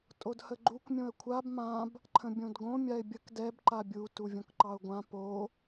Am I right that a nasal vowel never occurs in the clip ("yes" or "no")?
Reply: no